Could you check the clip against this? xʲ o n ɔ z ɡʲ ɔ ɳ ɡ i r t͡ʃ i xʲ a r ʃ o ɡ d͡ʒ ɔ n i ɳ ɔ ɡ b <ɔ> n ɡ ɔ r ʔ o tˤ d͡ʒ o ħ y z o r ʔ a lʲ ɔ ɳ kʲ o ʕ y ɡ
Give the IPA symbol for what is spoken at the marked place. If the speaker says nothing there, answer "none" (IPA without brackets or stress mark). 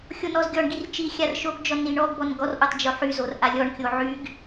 ɔ